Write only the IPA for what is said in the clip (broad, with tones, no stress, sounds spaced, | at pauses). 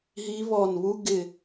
ɦ i˧˥ β ɔ˧˩ n β u˥ ɡ ɪ˧˩